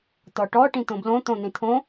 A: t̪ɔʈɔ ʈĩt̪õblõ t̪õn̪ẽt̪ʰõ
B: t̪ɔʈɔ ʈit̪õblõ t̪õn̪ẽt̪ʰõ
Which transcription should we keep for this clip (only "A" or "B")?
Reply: A